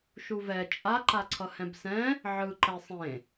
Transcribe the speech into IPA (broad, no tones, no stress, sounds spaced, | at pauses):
ʃ u v ɛ t͡ʃʼ a ǃ a ǀʰ ʌ h ɛ̃ b s ɛ̃ | ʕ ɯ ǃ ɛ sˤ ẽ